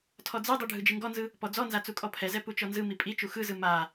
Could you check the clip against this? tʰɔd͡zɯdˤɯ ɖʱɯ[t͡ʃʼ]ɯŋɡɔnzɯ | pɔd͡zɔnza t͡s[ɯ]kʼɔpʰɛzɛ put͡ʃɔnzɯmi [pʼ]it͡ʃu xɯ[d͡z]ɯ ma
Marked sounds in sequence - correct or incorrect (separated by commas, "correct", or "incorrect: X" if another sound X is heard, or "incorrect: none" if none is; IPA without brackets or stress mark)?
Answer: incorrect: d͡ʒ, incorrect: u, correct, incorrect: z